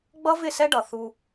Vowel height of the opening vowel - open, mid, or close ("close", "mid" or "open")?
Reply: mid